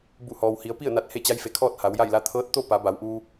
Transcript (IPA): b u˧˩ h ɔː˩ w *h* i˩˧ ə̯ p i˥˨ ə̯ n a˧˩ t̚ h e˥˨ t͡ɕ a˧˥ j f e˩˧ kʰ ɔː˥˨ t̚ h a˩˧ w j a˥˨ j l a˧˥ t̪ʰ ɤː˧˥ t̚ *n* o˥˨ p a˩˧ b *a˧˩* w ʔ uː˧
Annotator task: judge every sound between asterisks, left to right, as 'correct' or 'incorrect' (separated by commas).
correct, incorrect, incorrect